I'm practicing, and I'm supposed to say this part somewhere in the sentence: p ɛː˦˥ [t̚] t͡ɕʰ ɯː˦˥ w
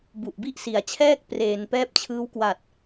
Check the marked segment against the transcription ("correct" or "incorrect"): incorrect